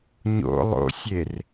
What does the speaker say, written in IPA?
ɲ o̰ lˠ o̰ sʲ e r

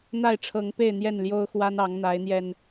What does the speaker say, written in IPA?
n̪ a˥˨ ɪ̯ ʈ͡ʂʰ ɤ˨˦ ŋ p e˥˨ ɪ̯ n̪ j ɛ˥˨ n l j o˦ ʊ̯ x w a˦ n ɑ˨˦ ŋ n̪ a˨˦ ɪ̯ n̪ j ɛ˧ n

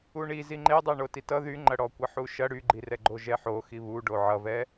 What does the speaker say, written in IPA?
u ɳ i z i ŋ͡ǃ e dˤ ɛ ɳ o t i t ʌ ð y ŋ͡ǃ ɐ ɽ ɔ kʷ ʌ ħ u ʃ ɐ ɽ y ɡ͡ǃ i r ɛ ɡ͡ǃ o ʒ ɛ ħ o x i β u ɖ o ʕ ʌ v ɛ

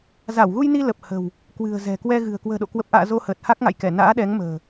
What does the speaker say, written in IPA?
z a˧˩ w ɣ u˧ j n i˧ l ə˨˩ p̚ h ə̤˨˩ w | k w ɨ̤˨˩ ə̯ z ɛ̤˨˩ k w ɛ˧ ɣ ɨ̤˨˩ ə̯ k w ə̤ː˨˩ ɗ o̰˧˨ k w ə˨˩ p̚ ʔ a̰ː˧˨ z o˧ h əː˨˩ t̚ h a˦˥ k̚ ŋ a̰˧˨ j k ɛ˧˩ n a̰ː˧˥ ɗ ɛ˨˦ ŋ m ə̤ː˨˩

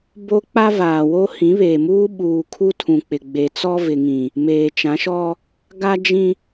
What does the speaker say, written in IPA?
b o˦ k͡p a˦ v aː˨ w o˦ h ĩ˨˦ β eː˨ m uː˦ ɓ uː˨ kʰ u˦ tʰ ũ˨ k͡p ɪ˨ ɡ͡b e˨ t͡s ɔ˦ v ɪ˨ ŋ ĩ˨ | m eː˨ t͡ʃ ã˨˦ ʃ ɔ˦ | ɡ a˦ d͡ʒ ĩ˦

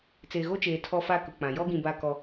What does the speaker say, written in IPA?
t͡s eː˨ ɣ o˦ t͡ʃ eː˨ tʰ ɔ˦ f a˦ k ʊ˨ k͡p ã˨ j ɔ˦ ɡ ĩ˨ b a˦ k ɔ˦

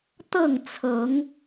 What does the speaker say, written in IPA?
t̪ ɤ˥˨ ŋ t͡sʰ ɤ˨˦ ŋ

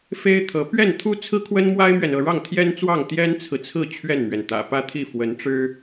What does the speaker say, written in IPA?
f e˥ ɪ̯ t̪ʰ ɤ˧˥ p ɥ ɛ˥˩ n t̪ʰ u˥ t͡sʰ ɹ̩˥ kʰ w ə˥ n m w a˥ ɪ̯ m ɥ ɛ˨ n ɤ˥˧ ɻ ɑ˥˩ ŋ t̪ʰ j ɛ˥ n t͡s w ɑ˥˩ ŋ t̪ j ɛ˥ n t͡sʰ ɹ̩˨ t͡sʰ ɹ̩˥˧ t͡ɕʰ ɥ ɛ˥˩ n m ɥ ɛ˩ n t̪ ä̰˨˩ p ä˥˧ t̪ʰ i˥˩ f w ə˧˥ n ʈ͡ʂ ɻ̩˥

